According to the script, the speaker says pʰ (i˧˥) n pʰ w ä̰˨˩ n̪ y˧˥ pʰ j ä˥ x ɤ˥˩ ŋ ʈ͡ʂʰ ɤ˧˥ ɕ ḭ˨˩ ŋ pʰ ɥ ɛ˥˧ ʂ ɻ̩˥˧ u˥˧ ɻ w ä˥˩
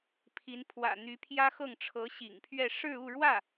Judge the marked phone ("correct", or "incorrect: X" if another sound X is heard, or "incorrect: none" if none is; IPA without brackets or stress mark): correct